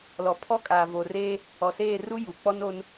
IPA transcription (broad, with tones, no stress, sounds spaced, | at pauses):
l ɔ˨ pʰ ɔ˦ kʼ aː˨ v o˨ r eː˦ | ɔ˨ s eː˦˨ r u˦ j u˨ k͡p ɔ˦ n o˦ n